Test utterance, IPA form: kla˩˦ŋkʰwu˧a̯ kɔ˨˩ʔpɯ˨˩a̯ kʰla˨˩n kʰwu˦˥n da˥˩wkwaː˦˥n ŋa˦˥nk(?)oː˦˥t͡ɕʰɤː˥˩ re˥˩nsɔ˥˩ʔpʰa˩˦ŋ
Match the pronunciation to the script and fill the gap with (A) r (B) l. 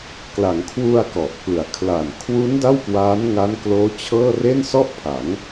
B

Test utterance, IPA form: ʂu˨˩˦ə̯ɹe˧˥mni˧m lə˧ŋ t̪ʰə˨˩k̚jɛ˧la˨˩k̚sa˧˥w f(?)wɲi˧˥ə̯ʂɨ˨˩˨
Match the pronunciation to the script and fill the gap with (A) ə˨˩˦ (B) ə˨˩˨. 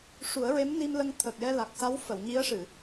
B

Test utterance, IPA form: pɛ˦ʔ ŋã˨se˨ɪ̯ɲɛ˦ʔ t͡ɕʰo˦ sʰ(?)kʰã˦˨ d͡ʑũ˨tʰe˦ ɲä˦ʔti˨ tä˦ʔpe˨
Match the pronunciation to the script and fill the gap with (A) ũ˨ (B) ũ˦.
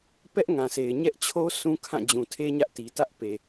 B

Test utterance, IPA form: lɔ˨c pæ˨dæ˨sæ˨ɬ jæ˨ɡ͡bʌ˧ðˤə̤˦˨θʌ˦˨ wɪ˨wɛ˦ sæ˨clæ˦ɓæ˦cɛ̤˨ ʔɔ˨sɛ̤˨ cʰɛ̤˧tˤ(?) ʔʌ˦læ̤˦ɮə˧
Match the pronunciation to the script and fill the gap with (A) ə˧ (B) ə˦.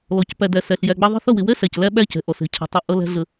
B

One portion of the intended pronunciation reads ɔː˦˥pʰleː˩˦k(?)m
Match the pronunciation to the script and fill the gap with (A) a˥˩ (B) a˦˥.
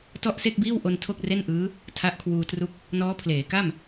A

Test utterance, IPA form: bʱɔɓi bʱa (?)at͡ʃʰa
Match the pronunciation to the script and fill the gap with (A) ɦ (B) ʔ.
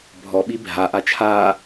B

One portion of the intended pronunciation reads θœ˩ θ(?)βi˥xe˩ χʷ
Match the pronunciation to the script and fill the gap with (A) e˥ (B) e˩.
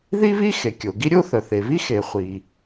B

